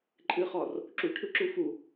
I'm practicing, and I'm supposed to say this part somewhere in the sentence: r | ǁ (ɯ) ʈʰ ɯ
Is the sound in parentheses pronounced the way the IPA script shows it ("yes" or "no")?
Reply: no